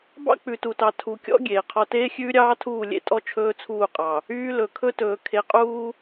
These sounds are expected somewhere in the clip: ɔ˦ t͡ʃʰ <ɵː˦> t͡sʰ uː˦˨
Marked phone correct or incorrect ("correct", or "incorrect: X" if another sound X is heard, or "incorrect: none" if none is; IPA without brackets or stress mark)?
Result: correct